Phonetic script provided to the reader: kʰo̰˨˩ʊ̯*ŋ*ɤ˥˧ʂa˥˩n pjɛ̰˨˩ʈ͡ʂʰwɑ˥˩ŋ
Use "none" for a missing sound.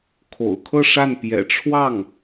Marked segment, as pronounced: kʰ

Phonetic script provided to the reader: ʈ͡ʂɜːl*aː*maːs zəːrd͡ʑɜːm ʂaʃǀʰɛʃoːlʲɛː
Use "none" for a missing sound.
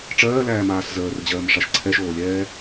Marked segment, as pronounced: æː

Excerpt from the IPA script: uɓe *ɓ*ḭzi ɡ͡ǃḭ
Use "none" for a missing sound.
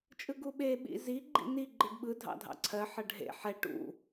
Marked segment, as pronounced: ɓ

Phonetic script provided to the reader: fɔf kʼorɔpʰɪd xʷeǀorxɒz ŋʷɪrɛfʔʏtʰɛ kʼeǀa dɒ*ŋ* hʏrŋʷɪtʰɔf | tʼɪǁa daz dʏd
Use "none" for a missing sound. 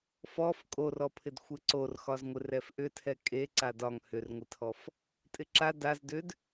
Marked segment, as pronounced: ŋ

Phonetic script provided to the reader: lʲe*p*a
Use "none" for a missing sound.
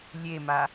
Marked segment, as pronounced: m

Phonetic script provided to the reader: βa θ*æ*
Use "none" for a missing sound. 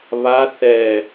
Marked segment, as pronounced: ɛ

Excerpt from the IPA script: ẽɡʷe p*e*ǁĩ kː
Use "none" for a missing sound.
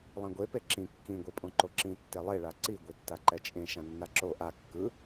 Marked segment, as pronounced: e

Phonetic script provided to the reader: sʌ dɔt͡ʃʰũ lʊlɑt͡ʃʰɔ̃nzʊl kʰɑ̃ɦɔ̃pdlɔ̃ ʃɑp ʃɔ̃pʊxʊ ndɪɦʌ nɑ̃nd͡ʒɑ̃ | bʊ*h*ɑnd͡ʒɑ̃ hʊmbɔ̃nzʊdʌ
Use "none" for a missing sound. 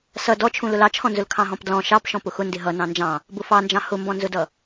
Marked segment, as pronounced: f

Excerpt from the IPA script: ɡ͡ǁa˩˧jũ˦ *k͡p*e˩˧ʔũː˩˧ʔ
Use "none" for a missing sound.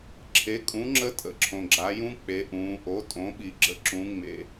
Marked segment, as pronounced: k͡p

